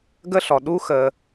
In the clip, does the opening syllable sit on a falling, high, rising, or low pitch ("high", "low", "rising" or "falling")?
high